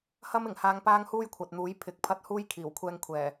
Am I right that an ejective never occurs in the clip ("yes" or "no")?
yes